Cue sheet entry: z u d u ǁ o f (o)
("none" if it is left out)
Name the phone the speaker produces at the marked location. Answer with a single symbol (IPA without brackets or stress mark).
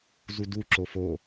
o